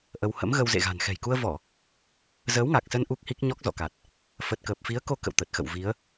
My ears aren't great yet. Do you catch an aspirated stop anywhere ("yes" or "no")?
no